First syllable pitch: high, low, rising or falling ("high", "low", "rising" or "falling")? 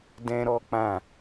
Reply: high